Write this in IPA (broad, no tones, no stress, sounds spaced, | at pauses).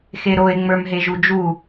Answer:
x e ɾ o e̯ ŋ͡m ə˞ m ɦ e ʒ u d͡ʒ u